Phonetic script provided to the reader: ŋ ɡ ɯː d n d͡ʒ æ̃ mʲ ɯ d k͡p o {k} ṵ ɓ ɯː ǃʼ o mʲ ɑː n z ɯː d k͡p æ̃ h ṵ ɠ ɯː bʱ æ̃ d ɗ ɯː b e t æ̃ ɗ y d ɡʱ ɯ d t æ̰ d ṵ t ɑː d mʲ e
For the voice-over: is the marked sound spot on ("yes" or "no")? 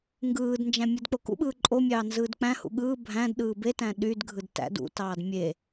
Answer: yes